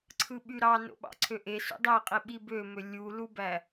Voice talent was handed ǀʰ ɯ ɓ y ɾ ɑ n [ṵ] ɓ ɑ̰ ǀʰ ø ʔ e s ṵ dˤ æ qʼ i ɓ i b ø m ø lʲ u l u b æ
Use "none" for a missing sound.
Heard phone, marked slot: o̰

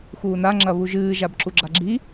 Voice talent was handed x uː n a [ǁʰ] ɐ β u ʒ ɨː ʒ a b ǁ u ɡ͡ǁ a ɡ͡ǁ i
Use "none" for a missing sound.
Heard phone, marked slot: ŋ͡ǁ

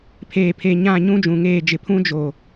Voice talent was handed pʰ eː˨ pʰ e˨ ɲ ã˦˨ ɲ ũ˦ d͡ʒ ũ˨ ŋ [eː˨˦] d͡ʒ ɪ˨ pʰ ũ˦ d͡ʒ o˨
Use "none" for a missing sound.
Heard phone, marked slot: eː˦˨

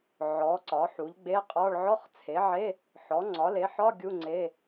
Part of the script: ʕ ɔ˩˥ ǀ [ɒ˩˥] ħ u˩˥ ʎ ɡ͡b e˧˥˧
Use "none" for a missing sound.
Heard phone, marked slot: ɒ˩˥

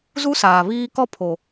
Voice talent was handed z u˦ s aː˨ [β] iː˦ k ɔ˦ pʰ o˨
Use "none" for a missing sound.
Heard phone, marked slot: β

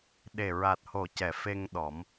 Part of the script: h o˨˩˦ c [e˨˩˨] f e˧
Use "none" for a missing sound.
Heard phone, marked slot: ɛ˨˩˨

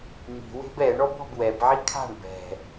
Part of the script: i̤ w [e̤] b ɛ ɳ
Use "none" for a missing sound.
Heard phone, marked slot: e̤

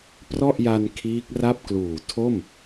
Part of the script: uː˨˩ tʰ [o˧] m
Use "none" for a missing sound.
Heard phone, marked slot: o˥˩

